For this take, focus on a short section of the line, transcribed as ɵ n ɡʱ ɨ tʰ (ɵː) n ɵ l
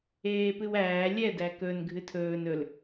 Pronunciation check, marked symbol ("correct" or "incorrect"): correct